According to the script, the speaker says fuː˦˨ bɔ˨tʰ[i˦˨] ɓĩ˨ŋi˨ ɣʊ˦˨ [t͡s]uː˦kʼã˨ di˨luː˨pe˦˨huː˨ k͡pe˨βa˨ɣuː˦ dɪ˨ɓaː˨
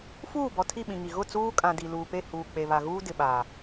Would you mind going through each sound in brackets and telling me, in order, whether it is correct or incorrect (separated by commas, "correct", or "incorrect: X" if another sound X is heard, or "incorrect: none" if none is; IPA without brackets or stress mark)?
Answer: correct, correct